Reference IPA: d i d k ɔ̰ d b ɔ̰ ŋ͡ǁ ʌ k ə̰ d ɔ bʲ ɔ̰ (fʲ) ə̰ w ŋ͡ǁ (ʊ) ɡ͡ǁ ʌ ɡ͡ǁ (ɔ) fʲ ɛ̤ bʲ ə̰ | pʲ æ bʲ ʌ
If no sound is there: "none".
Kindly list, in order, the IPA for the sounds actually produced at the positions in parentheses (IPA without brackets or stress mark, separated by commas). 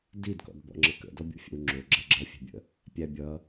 fʲ, ʊ, ʌ